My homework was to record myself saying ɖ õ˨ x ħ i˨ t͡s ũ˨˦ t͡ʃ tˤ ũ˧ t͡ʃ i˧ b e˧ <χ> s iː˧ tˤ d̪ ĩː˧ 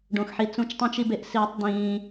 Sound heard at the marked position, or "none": ʔ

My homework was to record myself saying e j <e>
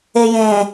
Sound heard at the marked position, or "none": ẽ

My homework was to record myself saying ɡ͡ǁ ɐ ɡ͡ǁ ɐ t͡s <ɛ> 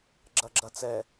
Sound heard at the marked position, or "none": ɛ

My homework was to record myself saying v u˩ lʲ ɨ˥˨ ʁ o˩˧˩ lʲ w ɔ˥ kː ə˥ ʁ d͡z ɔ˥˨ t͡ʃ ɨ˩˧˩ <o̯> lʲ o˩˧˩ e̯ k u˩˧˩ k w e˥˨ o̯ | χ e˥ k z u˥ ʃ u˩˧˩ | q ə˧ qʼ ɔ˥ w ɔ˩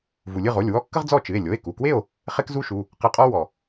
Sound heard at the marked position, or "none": e̯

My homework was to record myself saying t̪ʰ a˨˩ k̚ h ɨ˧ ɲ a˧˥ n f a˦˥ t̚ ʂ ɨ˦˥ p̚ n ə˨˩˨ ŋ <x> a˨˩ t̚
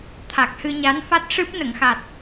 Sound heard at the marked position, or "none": x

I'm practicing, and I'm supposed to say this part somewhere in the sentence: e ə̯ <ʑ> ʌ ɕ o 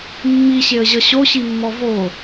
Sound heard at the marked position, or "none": ʑ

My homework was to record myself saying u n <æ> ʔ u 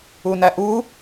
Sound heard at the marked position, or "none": æ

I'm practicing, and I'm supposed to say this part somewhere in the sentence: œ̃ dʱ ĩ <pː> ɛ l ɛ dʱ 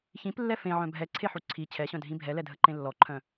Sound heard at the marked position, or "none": bʱ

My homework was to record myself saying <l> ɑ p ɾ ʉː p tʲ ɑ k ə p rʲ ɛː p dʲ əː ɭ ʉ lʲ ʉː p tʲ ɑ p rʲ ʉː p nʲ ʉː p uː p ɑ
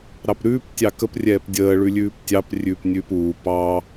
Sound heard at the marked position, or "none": ɾ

